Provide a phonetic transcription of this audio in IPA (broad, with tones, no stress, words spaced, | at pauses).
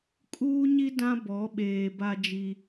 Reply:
kʼuː˦ɲi˦ dã˦bɔ˨˦ɓeː˨ ba˦ d͡ʒi˦